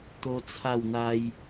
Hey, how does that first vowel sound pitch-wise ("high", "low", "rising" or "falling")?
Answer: high